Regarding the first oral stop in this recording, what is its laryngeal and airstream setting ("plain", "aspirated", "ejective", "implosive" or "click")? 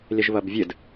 plain